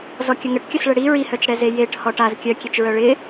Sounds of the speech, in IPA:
z ɔ kʲ ə ŋ ə ʈ kʲ ə s ɭ ə ɽ i ɹ i h œ t͡ʃ ɽ ɛ z e j e ʈ h ɔ ʈ a z kʲ œ kʲ e t͡ʃ ɹ œ ɭ ɪ

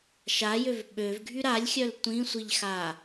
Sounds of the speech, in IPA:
ʃ a j ø v ɓ ø v ɡʱ y ɾ a lʲ xʲ œ l tʷ ĩ sʷ i ʎ x a

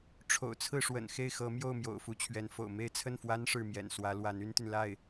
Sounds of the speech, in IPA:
ʈ͡ʂʰ o̰˨˩ ʊ̯ t͡sʰ ɹ̩˥˩ ʂ w ə̰˨˩ n x e˥˩ ɪ̯ x ɤ˧˥ m j o˥˩ ʊ̯ m j o̰˨˩ ʊ̯ f u˧˥ t͡ɕʰ ɥ ɛ˧˥ n f o̰˨˩ ʊ̯ m e˥˧ ɪ̯ t͡sʰ ə˥˩ n f w a˥ n ʂ ɻ̩˥˩ m j ɛ̰˨˩ n s w ä˧˥ l w a˧˥ n y˥ n t̪ y˨ n l a˥˩ ɪ̯

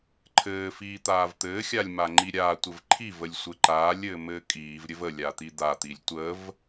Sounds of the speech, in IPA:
ǃʰ ɘː f iː t̪ aː v t̪ ɘː xʲ a lʲ m a ŋ͡ǃ i ɾʲ aː tʷ ɘ v ǃʰ i v ə lʲ sʷ ɘ ǃ aː lʲ ɘː m ɘː kʼ iː v ɾʲ ɘ v ə lʲ a t̪ i d̪ a t̪ i lʲ tʷ ə v

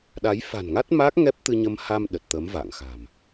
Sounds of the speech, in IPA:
ɗ a˨˦ j f a̤˨˩ n ŋ a˦˥ t̚ m a˦˥ k̚ ŋ ɛ˦˥ p̚ t̪ ɨ˧ ɲ ə˧ m h a˧ m ɗ ə˨˩ t̚ t̪ ə˨˦ m v a̰ː˧˨ ŋ x a̤˨˩ m

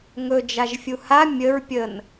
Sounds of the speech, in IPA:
ŋ ɵ d͡ʒ a ʒ fʲ u h a mʲ ə ɹ pʲ ə n

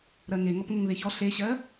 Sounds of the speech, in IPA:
ɾ ɜ ŋ e ŋ ɔ p ŋ ə ŋ β e ç ɔ ɬ e ɕ ɜ

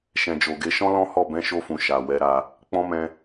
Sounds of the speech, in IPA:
ʃ ɛ̃˨ d͡ʒ o˨ ɡ e˨˦ ʃ ɔ̃˦ l ɔ̃˦ h ɔ˦˨ b ɛ̃˨˦ ʃ o˧ f ũ˨ ʃ a˨ w ɛ˨˦ ɾ a˧ | k͡p ɔ̃˦ m ɛ̃˧

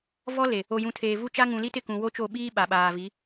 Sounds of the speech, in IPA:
v ɔ˦ l e˨ | o˨ j ũ˨ tʰ eː˨ v u˦ t͡ʃ a˦ ŋ ũ˨ l i˦ t ɪ˦˨ k ũ˨ w o˦ t͡ʃ o˦˨ ɓ iː˦ ɓ a˨ ɓ aː˨ v i˨˦

